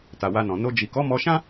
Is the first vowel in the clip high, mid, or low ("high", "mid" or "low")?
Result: low